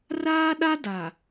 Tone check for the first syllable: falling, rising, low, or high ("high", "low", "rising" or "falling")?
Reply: high